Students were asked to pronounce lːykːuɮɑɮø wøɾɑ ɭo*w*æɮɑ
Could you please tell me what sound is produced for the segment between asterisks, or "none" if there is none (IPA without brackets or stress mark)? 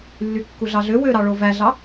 v